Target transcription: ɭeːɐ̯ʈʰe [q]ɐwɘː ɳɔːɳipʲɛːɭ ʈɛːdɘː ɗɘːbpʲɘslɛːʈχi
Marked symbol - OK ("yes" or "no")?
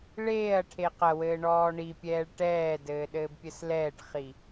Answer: yes